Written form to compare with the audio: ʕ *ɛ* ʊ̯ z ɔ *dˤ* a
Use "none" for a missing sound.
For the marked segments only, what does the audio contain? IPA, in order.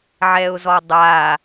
ɛ, dˤ

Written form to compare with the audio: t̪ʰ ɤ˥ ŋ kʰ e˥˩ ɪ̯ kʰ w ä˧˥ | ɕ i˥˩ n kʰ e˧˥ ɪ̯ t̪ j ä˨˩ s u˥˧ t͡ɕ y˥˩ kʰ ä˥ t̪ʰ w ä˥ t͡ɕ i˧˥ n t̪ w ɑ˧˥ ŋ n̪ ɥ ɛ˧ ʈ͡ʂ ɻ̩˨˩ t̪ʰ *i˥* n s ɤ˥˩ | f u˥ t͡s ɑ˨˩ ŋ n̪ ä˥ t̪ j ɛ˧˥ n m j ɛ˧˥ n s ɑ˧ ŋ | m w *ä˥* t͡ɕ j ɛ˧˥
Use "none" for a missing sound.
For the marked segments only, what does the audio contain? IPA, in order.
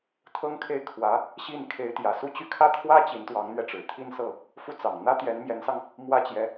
i˥˧, ä˥

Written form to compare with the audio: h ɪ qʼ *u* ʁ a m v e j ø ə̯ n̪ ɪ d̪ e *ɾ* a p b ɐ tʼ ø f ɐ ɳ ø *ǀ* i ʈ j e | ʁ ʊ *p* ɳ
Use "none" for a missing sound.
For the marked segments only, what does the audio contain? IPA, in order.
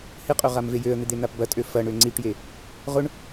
ø, n̪, ŋ͡ǀ, none

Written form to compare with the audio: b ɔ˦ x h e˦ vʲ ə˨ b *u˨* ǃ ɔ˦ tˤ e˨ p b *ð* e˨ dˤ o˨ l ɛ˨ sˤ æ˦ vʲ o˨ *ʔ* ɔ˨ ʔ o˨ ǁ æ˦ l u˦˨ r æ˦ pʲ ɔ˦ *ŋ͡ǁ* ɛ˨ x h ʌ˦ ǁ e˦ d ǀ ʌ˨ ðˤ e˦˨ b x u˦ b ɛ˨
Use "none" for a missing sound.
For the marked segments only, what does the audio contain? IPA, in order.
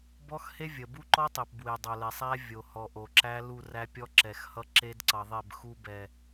u˦, w, h, ǁ

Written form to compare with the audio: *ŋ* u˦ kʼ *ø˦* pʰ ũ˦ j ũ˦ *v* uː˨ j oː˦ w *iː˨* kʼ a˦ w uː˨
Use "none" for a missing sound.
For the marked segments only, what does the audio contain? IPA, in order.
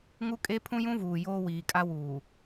ŋ, e˦, v, iː˨

